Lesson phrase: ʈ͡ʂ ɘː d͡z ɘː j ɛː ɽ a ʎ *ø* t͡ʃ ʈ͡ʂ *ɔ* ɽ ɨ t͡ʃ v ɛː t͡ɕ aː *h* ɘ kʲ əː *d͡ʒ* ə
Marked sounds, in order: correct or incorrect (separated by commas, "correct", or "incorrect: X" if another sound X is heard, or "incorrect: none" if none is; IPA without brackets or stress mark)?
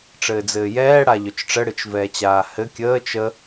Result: correct, incorrect: ə, correct, incorrect: t͡ʃ